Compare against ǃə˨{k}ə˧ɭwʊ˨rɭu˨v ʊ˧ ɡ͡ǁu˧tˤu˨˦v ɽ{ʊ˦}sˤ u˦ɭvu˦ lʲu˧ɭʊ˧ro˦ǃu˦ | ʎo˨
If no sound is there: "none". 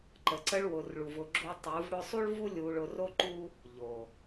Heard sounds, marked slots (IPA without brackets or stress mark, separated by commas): ǀ, ʊ˦